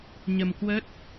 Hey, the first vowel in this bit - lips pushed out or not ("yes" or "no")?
no